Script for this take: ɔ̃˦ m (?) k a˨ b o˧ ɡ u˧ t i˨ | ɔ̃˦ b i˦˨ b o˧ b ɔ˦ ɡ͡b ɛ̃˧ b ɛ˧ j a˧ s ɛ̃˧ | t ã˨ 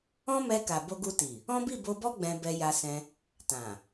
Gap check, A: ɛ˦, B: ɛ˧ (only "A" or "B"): B